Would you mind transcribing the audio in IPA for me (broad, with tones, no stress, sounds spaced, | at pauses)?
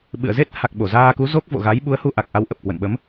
ɓ ɨ̰˧˨ ə̯ z e˦˥ t̚ h a˨˩ k̚ ɓ o˧˩ z aː˧ k u˨˦ z o˦˥ k̚ v o̰˧˨ ɣ a˨˦ j ɓ u˨˦ ə̯ h u˧ ʔ a˨˩ k̚ ʔ a˨˦ w ʔ ə˨˩ p̚ k w ə̰˧˨ n ɓ ə˨˦ m